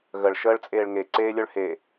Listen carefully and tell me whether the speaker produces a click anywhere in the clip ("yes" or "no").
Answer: yes